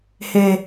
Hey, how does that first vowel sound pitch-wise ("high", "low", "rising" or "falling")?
low